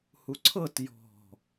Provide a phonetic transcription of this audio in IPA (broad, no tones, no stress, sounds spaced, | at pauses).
h u ǀʰ ɤ t j ɔ̤